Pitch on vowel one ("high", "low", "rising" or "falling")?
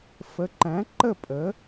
rising